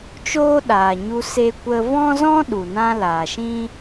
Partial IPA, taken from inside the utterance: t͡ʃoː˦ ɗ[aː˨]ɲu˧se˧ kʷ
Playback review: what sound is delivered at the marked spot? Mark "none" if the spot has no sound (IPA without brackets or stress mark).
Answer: aː˨